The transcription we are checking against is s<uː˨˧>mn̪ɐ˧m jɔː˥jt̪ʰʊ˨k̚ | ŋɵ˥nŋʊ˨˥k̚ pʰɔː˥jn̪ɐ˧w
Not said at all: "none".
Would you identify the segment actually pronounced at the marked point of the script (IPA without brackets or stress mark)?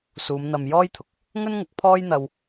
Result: uː˨˧